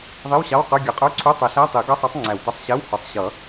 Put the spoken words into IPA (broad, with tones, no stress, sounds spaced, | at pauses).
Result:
ðˤ i˧˥˧ w ɕ ɑ˧˥˧ w q ə˞˧˥˧ ɡʲ ʌ˨˩˦ qʼ ə˞˧˥˧ ǀʰ u˧˥˧ tˤ ɛ˨˩˦ ɬ æ˧˥˧ tˤ i˨˩˦ ɡ ʌ˧˥˧ sˤ ɑ˧˥ tˤ ŋ͡ǀ æ˨˩ w t ʌ˧˥ sˤ ɕ ɛ˧˥˧ w h ə˞˨˩˦ sˤ ɕ ʌ˨˩˦